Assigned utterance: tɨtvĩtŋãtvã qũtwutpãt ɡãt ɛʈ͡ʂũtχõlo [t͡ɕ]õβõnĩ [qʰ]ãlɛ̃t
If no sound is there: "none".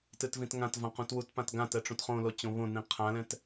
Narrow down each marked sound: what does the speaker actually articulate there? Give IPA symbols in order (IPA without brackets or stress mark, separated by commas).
t͡ɕ, qʰ